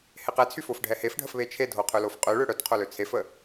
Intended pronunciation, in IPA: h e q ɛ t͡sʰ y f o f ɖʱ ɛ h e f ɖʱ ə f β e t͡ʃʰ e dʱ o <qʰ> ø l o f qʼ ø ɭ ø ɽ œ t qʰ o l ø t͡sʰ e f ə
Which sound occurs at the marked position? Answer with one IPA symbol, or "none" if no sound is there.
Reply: qʰ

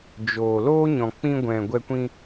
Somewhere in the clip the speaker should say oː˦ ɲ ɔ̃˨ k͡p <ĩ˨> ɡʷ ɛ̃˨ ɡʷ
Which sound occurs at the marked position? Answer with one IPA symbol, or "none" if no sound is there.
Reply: ĩ˧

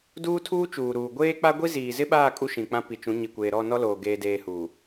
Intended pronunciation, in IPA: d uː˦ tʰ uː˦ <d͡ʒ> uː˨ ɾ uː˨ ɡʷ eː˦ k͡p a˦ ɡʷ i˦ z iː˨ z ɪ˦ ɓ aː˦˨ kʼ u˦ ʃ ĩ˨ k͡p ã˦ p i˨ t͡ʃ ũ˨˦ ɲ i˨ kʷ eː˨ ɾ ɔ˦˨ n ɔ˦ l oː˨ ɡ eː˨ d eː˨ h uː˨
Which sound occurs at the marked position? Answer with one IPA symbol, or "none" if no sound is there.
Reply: t͡ʃ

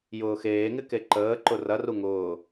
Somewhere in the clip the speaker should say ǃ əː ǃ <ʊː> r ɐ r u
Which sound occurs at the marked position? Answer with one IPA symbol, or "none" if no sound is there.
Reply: ʊ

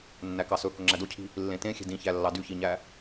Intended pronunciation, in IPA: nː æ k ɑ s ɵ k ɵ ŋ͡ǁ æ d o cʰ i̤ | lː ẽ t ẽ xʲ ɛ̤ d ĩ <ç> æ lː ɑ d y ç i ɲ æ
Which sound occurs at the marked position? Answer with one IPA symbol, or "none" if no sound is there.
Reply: ç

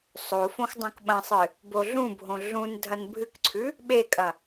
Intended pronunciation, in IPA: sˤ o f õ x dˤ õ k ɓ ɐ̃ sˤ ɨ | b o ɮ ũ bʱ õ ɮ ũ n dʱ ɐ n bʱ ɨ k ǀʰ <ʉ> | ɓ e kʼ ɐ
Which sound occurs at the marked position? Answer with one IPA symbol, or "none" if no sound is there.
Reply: ʉ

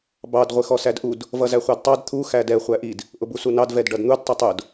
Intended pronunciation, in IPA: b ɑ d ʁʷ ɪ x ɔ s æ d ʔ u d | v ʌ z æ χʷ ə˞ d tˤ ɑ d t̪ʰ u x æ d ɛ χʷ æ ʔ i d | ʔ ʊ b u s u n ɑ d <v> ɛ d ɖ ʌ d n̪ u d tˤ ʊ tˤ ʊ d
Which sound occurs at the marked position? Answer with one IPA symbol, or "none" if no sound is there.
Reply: v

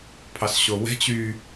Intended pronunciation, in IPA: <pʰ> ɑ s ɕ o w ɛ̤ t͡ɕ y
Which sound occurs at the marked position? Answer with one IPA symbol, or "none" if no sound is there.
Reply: pʰ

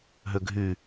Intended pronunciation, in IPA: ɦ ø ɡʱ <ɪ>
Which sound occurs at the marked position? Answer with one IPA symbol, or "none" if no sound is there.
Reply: y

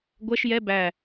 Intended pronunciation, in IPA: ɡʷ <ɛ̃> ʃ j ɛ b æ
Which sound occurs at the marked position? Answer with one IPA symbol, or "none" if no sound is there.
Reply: ɛ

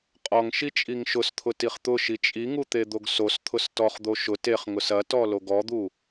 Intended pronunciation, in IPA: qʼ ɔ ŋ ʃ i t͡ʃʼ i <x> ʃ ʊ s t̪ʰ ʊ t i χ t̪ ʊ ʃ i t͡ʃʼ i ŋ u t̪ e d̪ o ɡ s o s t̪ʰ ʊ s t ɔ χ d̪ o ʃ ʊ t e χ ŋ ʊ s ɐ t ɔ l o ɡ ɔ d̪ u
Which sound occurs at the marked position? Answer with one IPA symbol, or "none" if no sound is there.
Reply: ŋ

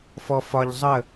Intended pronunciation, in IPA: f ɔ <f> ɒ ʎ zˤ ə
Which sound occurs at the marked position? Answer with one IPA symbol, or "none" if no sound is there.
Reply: f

